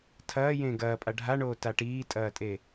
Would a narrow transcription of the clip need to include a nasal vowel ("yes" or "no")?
yes